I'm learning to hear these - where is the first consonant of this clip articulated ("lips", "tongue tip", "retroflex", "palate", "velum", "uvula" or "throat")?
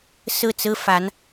tongue tip